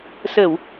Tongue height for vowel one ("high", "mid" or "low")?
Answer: mid